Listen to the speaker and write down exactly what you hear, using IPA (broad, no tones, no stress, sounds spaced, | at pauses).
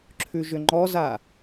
ǁʰ ʉ ʒ ʏ ŋ͡ǃ ɔ z a